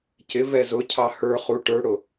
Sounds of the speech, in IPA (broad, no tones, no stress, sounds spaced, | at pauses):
c ɪ v ɛ z ʊ cʰ ɑ h ə˞ χ u ʈ ə˞ ɽ ʊ